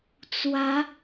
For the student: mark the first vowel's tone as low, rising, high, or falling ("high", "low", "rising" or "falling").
rising